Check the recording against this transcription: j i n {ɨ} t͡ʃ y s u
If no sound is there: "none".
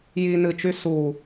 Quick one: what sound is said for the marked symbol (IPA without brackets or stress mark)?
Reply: ɨ